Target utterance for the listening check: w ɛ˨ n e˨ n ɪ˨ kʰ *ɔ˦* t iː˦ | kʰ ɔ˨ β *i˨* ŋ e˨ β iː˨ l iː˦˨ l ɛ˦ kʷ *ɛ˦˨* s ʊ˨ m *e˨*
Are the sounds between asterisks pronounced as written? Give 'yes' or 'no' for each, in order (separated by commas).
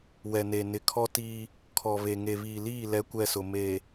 yes, no, yes, yes